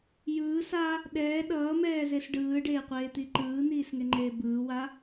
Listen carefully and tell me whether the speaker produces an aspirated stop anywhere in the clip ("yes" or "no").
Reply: no